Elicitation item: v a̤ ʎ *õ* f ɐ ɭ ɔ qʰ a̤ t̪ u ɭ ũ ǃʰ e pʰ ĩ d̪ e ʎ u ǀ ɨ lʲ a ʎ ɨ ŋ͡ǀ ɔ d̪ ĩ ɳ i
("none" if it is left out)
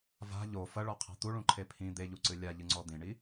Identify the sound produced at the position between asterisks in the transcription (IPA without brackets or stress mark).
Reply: o